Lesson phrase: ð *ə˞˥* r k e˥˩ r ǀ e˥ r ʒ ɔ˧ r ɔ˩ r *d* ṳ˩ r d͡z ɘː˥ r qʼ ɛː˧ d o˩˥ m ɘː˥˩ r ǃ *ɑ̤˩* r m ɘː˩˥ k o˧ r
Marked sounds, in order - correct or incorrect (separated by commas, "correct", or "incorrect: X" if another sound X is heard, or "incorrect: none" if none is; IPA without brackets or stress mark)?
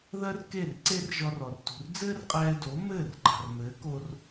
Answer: incorrect: ɜ˥, incorrect: t, correct